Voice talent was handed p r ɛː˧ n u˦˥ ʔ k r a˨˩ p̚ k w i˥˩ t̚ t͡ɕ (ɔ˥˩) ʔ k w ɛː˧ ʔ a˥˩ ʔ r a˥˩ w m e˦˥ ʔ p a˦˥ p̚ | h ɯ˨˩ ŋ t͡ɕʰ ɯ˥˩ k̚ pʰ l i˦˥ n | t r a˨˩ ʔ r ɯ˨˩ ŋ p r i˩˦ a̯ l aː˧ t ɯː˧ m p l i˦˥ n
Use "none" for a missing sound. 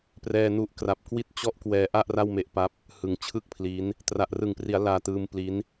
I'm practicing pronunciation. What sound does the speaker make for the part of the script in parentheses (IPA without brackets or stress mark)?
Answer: ɔ˥˩